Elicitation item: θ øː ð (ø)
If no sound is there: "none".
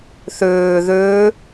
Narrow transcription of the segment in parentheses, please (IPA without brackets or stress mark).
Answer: ø